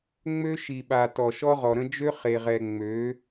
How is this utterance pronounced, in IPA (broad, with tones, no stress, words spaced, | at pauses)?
ŋ͡mø˦ʃi˨ɓa˨ tɔ˨ʃɔ˦ʁɔ˨ɾə̃˦ d͡ʒø˦χe˨ʁɛ˨ ŋ͡mø˨˦